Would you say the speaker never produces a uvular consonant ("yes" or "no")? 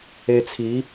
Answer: yes